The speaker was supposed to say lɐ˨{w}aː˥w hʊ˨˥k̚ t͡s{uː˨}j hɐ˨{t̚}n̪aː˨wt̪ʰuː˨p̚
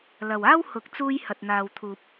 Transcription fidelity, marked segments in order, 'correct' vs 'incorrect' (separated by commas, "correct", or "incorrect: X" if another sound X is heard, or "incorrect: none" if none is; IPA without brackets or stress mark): correct, incorrect: uː˧, correct